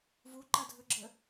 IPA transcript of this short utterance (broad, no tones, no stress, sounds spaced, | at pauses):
v u ǃ a dʱ ɵ ɡ͡ǁ ə